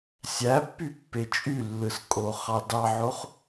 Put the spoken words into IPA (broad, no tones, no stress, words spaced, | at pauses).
sʲæpːypːe t͡ʃʼylːɯskʼoχɑ dɑʕoχ